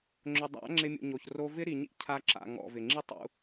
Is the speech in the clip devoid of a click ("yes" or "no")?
no